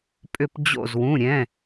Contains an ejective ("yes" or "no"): yes